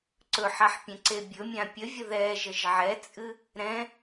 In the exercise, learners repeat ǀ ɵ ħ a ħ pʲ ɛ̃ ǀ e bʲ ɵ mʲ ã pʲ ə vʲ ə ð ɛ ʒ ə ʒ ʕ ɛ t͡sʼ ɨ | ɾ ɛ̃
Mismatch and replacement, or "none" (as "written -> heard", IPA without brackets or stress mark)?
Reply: none